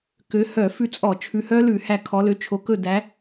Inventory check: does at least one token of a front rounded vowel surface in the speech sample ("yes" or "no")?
yes